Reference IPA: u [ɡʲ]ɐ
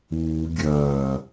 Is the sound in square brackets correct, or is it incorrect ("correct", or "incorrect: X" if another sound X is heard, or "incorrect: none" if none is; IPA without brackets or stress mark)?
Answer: correct